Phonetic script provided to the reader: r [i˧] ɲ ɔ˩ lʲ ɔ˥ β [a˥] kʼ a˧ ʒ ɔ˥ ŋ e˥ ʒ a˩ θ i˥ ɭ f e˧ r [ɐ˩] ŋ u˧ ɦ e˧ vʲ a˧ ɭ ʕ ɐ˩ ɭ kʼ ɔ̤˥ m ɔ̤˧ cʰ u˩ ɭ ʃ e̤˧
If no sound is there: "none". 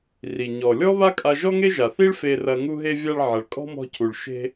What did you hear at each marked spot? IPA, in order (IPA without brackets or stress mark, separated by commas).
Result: i˩, a˥, ɐ˧